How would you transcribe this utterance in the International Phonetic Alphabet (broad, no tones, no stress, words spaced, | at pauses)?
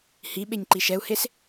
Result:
hiɓeɲ ǃiʃɛu̯hes